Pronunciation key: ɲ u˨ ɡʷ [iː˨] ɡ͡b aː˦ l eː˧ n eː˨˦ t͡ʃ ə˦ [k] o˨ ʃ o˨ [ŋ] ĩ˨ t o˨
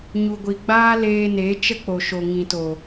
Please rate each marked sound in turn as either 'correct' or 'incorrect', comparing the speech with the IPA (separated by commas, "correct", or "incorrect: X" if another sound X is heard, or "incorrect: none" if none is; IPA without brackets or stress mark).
incorrect: i˨, incorrect: k͡p, correct